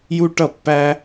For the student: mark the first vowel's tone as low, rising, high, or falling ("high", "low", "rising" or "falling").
high